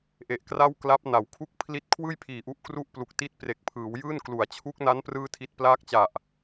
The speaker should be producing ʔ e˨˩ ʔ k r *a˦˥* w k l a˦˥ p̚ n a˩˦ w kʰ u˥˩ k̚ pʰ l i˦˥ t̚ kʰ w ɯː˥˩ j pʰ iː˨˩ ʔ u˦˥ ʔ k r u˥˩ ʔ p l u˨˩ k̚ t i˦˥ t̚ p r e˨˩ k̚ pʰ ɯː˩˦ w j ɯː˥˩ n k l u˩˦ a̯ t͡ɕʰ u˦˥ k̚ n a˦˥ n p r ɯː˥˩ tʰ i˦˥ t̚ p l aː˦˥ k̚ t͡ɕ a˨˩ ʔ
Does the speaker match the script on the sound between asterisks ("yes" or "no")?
no